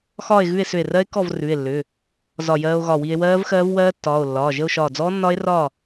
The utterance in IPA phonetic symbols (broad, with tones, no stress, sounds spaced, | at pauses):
x ɒː˥˨ e̯ ɣ ʉ˥˨ e̯ s ʏ˧˩ e̯ r ɜ˦˥ e̯ k ɔ˥˨ v r ʉ˩˧˩ e̯ lː ʏ˩˧˩ | z ɒ˧˩ j ɜː˧ o̯ ɣ ɒ˧˩ w i˧ e̯ w ɜː˦˥ v x ɜː˦˥ v w ɜː˦˥ tː ɒː˩˧˩ o̯ lː ɒː˩˧˩ ʒ ə˥˨ o̯ ʃ ɒː˧˩ d͡z ɔː˦˥ nː ɒ˦˥ e̯ r ɒ˥˨